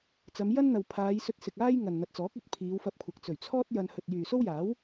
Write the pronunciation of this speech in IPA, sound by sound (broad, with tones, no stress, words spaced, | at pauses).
t͡sɐ˨˧m jɐ˥nn̪ɐ˨w pʰaː˨˧jsɵ˧t̚sɪ˨k̚ aː˥j ŋɐ˨nn̪ɐ˨t̚t͡sɔː˨˥k̚ɵ˥t̚ pʰiː˨˧wfɐ˧p̚kʷʰɐ˨k̚ t͡sɵ˨˩ɥt͡sʰɔː˥t̚ jɐ˧n hɵ˨t̚ jyː˨so˥wjaː˨˥w